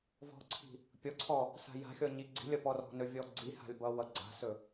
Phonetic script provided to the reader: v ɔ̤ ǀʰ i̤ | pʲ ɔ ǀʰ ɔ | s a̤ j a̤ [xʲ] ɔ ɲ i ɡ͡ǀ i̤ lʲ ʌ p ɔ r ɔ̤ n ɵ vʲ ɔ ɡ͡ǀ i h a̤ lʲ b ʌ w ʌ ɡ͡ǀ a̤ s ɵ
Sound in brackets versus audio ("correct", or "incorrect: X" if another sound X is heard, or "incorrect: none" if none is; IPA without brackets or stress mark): correct